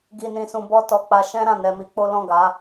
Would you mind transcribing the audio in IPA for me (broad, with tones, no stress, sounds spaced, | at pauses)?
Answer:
ɡ i˧ n ĩ˧ s ũ˧ b ɔ˦ t ɔ˧ k͡p a˧ ʃ ɛ̃˦ ɾ ã˦˨ n ɛ˧ m i˧ k͡p o˦ l ɔ̃˦˨ ɡ a˨˦